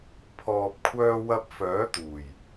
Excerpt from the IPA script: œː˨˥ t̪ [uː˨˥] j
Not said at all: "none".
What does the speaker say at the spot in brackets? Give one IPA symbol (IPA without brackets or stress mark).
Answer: uː˨˩